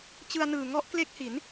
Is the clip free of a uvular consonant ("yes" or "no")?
yes